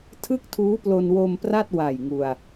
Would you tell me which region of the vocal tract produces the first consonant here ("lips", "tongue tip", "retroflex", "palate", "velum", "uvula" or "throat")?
tongue tip